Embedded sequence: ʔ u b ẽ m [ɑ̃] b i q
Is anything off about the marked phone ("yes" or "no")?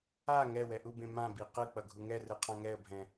yes